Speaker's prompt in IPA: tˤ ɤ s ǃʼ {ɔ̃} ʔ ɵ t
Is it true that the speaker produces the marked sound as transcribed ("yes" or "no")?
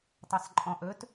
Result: yes